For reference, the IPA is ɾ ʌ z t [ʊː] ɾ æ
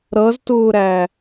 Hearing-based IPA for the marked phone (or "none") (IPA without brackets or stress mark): ʊː